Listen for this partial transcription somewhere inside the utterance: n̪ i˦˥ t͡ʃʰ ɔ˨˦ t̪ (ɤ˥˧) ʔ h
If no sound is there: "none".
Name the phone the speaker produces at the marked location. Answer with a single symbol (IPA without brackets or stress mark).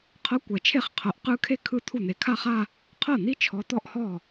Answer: ɔ˥˧